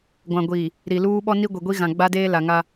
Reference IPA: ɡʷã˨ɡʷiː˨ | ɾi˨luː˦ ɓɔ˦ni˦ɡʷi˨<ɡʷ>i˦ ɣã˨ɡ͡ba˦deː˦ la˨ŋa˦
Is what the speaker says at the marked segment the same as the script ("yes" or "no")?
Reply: yes